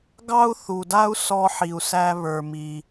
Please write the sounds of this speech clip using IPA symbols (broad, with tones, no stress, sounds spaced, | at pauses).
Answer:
ɡ ɑ˥ u̯ θ u˩ d a˥ u̯ s ɔ˧ ħ i˩ u̯ s æ˧ β ə˞˩ m i˩